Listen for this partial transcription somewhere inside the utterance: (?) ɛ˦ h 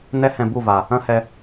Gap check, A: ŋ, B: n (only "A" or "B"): B